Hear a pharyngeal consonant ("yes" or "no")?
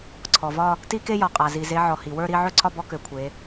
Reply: yes